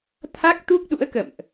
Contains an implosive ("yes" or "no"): yes